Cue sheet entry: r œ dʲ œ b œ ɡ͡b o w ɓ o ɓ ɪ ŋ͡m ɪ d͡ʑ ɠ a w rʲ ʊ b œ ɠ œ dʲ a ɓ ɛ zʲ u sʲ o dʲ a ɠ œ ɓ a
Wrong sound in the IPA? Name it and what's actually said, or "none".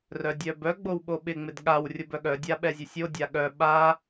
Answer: d͡ʑ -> d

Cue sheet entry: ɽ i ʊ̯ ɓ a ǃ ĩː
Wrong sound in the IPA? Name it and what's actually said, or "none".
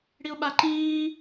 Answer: none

